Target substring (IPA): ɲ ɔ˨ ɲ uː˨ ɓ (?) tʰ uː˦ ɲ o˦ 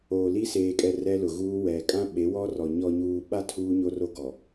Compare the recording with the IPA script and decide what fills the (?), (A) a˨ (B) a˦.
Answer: B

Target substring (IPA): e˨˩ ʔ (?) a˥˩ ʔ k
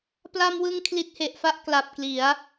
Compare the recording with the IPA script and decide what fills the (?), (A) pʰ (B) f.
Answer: B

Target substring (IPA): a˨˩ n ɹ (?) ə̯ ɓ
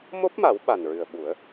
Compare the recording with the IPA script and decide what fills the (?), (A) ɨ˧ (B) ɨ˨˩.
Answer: B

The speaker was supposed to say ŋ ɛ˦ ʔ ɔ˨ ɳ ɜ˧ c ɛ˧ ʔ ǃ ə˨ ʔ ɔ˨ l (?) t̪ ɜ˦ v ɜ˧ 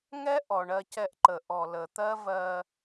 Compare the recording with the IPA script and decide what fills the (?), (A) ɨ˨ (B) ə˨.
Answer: B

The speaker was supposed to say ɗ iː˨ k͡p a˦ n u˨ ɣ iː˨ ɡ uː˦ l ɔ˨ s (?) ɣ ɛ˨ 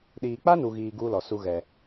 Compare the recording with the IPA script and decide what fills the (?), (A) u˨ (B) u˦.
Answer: B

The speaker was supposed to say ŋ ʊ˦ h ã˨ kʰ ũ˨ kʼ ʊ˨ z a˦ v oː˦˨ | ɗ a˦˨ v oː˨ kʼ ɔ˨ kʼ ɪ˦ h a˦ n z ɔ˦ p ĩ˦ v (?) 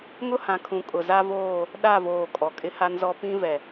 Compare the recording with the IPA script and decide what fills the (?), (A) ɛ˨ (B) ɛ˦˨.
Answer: A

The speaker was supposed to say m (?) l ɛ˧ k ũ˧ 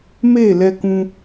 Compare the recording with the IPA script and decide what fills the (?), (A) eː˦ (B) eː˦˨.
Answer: B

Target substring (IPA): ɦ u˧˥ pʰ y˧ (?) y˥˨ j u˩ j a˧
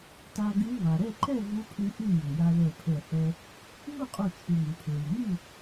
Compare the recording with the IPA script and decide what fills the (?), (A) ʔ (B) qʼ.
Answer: A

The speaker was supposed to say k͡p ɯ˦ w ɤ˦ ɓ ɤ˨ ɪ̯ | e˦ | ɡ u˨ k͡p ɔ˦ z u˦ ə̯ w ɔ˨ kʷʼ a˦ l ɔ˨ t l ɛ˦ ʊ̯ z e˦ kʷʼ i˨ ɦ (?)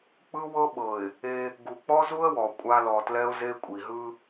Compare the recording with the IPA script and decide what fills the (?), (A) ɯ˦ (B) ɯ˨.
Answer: A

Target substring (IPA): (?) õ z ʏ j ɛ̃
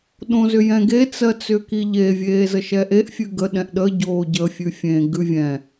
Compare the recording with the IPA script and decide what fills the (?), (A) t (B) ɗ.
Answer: B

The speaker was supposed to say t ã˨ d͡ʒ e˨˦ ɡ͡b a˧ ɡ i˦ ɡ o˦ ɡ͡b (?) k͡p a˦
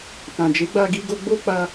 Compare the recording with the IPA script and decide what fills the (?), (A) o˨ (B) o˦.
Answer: B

